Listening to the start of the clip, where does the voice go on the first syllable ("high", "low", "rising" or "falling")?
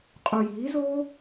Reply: low